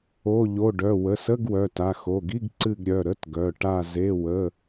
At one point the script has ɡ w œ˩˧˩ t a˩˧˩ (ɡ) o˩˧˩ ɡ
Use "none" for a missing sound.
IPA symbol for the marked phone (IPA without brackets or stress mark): x